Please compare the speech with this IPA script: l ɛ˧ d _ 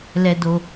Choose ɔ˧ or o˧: o˧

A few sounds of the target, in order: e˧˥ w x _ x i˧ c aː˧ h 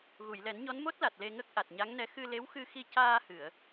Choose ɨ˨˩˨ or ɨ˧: ɨ˧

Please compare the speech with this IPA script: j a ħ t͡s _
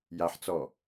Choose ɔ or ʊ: ɔ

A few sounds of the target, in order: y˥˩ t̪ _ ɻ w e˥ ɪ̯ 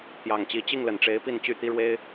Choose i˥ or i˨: i˥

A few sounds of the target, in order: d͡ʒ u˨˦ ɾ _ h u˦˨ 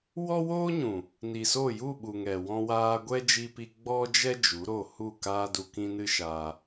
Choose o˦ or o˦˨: o˦˨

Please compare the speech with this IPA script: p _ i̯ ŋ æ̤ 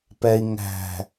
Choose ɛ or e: ɛ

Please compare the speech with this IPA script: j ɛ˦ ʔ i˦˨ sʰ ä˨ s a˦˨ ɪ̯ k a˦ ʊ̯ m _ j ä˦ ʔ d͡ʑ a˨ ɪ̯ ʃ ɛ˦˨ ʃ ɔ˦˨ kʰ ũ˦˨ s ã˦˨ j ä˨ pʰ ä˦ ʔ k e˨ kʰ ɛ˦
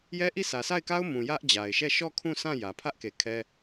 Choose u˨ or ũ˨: ũ˨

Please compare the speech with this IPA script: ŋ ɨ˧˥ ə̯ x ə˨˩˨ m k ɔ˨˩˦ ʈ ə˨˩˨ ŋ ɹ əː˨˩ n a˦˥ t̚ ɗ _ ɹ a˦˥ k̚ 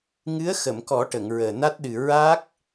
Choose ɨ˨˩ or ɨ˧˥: ɨ˨˩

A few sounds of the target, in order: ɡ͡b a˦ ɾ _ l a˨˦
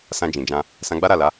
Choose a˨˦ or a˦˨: a˦˨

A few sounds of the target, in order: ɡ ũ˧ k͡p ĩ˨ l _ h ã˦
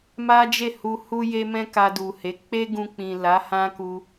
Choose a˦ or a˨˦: a˨˦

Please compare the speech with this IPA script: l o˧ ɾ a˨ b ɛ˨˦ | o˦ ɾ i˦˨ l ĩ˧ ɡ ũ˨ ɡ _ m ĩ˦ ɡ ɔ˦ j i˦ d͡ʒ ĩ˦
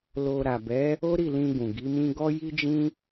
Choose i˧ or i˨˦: i˨˦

